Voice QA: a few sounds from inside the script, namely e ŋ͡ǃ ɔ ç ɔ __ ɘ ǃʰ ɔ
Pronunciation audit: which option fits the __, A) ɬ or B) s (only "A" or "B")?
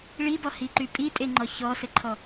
B